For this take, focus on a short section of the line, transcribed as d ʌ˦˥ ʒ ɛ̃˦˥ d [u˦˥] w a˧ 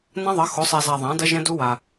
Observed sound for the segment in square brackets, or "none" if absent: u˦˥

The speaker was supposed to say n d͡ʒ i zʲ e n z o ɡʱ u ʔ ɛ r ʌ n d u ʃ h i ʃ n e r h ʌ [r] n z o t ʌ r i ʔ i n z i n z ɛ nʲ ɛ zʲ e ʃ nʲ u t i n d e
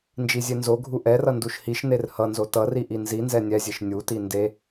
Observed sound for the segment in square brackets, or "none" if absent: none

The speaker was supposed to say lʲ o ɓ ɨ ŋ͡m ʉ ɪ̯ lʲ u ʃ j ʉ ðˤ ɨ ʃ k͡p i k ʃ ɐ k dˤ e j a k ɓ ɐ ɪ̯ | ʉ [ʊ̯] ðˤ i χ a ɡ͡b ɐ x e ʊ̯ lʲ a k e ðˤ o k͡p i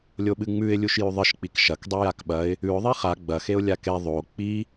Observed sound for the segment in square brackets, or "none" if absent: ʊ̯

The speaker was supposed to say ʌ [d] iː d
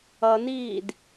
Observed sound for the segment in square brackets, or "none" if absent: n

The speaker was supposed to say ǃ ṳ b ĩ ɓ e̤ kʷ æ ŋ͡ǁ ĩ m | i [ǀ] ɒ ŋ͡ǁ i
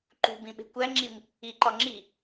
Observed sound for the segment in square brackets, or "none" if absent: ǃ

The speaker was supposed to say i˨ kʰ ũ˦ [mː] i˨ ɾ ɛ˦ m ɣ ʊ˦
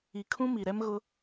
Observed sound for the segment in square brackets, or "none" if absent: m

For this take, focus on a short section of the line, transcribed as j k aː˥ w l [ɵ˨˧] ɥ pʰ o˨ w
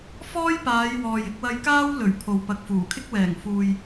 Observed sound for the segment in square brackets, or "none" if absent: ɵ˨˩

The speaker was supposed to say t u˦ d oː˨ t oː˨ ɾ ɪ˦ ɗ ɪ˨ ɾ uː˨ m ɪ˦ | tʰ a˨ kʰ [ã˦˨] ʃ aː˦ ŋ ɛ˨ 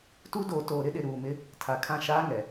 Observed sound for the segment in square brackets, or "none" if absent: ã˦˨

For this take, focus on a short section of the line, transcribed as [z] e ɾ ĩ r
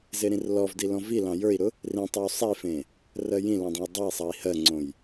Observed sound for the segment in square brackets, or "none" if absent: z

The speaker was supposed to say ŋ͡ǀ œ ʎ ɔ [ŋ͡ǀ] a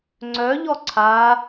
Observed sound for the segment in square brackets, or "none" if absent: ǀʰ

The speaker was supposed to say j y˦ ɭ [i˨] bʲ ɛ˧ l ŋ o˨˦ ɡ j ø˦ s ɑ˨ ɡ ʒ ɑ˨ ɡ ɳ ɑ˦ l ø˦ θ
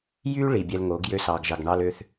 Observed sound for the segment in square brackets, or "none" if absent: i˨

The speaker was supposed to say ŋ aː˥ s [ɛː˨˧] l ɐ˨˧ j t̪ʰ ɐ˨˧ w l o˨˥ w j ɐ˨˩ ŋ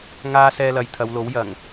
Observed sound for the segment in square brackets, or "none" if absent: ɛː˧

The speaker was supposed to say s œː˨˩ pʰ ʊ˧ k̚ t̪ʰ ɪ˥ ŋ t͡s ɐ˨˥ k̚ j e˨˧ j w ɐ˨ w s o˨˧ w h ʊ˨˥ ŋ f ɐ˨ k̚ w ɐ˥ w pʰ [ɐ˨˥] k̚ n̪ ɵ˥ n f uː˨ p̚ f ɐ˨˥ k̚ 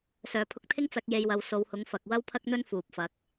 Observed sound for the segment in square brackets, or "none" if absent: ɐ˥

